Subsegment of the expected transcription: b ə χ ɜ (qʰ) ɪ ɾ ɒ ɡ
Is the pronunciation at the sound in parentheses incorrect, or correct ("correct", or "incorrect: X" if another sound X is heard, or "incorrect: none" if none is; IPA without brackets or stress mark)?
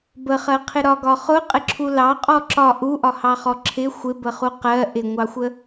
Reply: correct